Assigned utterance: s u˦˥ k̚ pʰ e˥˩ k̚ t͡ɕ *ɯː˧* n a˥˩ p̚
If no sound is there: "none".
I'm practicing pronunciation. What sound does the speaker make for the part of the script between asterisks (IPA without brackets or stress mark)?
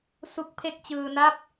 ɯː˧